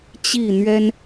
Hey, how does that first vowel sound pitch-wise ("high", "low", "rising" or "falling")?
falling